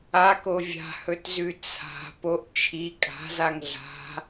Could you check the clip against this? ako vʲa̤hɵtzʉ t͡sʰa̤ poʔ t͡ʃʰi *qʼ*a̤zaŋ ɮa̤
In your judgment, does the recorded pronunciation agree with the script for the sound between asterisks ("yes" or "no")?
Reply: no